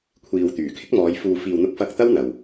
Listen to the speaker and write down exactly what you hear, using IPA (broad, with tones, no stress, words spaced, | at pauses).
kʷʰiː˨wt̪yː˨˩kʰɪ˥k̚mɔː˨˧j fuː˨fiː˨wn̪ʊ˧k̚fɐ˧k̚ t̪ɐ˥wn̪ɐ˨w